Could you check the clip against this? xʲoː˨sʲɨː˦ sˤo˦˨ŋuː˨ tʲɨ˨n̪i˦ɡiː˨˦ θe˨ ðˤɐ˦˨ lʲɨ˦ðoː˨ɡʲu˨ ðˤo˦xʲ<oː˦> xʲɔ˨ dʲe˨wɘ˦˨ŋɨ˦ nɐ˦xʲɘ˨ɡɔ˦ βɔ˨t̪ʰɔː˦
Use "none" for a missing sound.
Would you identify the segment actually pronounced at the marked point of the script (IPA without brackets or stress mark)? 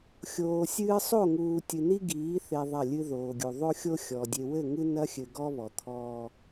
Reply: o˦